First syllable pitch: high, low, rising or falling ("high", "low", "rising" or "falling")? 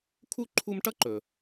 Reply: high